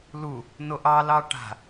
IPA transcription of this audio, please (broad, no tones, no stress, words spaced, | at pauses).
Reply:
lu | noʔɑlɑ ʈa̤